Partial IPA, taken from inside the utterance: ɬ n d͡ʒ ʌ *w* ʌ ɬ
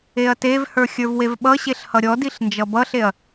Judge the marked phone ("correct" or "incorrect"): incorrect